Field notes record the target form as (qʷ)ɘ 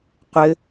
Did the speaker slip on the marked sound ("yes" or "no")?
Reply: no